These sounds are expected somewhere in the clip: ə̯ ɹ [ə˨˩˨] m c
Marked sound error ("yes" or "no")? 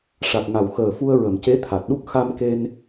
no